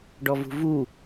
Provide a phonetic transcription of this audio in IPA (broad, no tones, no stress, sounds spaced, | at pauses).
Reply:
ɖ ɔ v ṳ v u